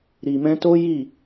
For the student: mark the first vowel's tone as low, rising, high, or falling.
low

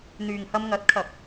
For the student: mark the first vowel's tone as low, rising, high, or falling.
low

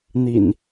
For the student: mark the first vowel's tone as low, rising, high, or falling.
low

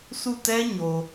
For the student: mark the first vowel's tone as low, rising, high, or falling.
falling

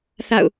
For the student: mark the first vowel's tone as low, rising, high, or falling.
falling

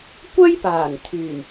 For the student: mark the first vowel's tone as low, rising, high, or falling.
high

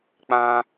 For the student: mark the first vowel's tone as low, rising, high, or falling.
high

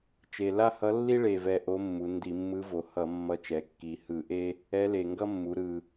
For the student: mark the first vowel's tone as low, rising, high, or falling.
low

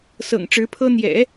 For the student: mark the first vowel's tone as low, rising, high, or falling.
low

